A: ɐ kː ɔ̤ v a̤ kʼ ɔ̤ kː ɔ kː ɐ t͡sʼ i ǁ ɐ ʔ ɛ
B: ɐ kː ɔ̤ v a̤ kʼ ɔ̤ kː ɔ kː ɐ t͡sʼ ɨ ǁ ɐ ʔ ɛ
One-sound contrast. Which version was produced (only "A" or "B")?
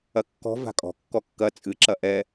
B